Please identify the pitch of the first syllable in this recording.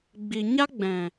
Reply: low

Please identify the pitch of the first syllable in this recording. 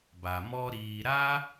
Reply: low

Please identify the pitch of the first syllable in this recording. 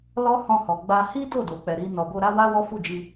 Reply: high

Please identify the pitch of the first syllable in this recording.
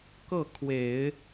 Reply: falling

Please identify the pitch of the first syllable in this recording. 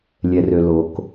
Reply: low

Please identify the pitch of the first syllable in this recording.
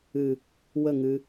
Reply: low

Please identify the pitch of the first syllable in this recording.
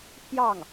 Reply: falling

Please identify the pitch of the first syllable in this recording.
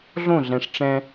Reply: falling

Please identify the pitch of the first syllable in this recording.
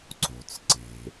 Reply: low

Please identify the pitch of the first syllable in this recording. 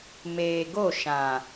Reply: low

